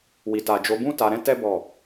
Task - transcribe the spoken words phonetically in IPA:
wi˨ta˨d͡ʒo˨˦ bũ˦ ta˧ɾɛ̃˦ tɛ˦ bɔ˦˨

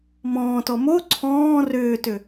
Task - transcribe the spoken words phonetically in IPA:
mɔ̃ːtɔ mo ǀʰɔ̃ː rʏːtʏ

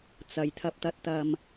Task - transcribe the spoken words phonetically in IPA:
t͡sɐ˨jt̪ʰɐ˧p̚t̪ɐ˧t̚t̪ɐ˧m

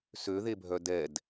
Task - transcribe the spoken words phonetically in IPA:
søðebʱœ dɛd

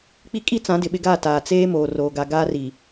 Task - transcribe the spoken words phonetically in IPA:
k͡pi˦kʼi˦t͡sã˨˦ dɪ˨ɓɪ˦ɡaː˦˨ ta˨t͡seː˦ moː˨roː˨ɡa˨ ɡaː˦ri˨

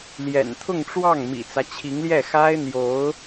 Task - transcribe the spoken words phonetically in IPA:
ljɛ̰˨˩nt̪ʰʊ˥˧ŋʈ͡ʂwɑ˥˩ŋ mḭ˨˩t͡sä˦t͡ɕʰi˧˥ŋljɛ˥˩ xa˥ɪ̯n̪jo˧˥ʊ̯

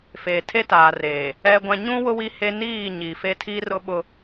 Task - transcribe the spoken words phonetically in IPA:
feː˨tʰe˦taː˨reː˨ | ɛ˦ɡʷã˦ ɲũ˦wʊ˦ wi˦he˦ niː˦˨ɲi˨fe˦ tʰiː˦rʊ˦ɓʊ˦

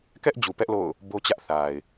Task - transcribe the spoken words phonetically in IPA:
kɛ˦ʔ d͡ʑu˨pɛ˦ʔ lo̰˦˨ʊ̯ | bo˦t͡ɕä˦ʔ θa˨ɪ̯

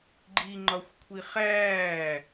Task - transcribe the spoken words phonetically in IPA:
ɡ͡ǃiŋ͡ǃɒxʷkʷʰi χæː

